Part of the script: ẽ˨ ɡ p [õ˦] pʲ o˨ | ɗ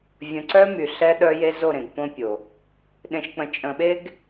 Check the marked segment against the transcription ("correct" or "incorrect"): correct